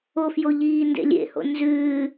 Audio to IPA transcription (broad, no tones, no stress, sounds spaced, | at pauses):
o f j o ʎ iː n d ḛ lʲ ḛ h o̰ n z ʉː